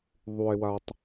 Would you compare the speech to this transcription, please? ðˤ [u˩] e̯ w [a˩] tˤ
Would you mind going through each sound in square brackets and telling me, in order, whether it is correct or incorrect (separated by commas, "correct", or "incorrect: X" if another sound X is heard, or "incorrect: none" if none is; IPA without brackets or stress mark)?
correct, correct